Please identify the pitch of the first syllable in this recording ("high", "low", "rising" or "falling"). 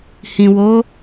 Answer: low